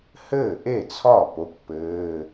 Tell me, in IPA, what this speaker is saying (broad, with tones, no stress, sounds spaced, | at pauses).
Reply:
h ɘː˥˩ ʔ e˥˩ t͡sʰ ɒ˥˩ p o˧˥˧ kʷ p ɘː˧˥˧